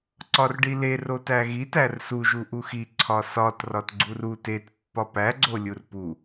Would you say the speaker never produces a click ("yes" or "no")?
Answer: no